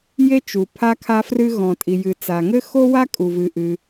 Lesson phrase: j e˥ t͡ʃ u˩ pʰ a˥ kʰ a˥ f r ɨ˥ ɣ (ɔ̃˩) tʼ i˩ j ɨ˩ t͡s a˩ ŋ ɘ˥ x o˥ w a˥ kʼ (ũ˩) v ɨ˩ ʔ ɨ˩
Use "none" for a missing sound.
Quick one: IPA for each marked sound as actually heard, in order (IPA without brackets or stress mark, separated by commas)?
ɔ̃˩, u˩